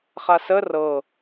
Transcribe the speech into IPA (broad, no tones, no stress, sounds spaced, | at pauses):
χ a s ə r ɤ